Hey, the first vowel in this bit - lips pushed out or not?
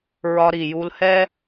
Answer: yes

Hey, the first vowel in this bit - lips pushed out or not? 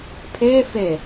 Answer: no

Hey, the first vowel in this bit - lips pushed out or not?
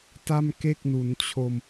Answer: no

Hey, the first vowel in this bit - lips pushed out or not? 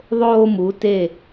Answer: yes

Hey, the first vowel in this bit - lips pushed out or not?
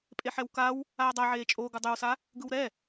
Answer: no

